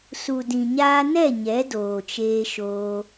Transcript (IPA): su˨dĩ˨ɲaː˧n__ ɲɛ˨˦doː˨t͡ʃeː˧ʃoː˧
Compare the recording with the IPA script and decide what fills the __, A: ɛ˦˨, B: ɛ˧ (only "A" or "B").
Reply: A